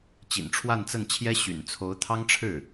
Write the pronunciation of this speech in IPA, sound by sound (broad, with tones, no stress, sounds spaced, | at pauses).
t͡ɕ ḭ˨˩ n ʈ͡ʂʰ w a˥˧ n t͡s ə˥˩ n t͡ɕʰ j ɛ˥ ɕ y̰˨˩ n t͡sʰ o˧˥ ʊ̯ t̪ʰ ɑ˥ ŋ ʈ͡ʂʰ ɻ̩˥˩